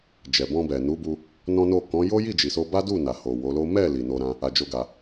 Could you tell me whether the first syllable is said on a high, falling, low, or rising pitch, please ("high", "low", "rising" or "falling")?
low